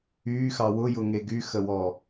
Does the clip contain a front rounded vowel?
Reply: yes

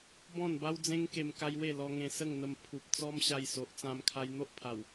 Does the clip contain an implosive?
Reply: no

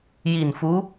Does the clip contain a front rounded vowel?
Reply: no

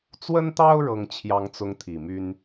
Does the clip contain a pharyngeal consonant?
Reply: no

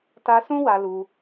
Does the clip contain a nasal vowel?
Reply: yes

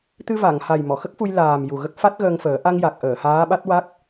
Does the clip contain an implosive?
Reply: yes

